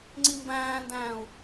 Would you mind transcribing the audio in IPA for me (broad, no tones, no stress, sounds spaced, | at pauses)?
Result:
ŋ͡ǀ i m b æ̃ː n d æ̃ː u̯